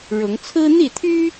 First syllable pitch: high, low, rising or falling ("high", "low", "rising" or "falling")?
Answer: rising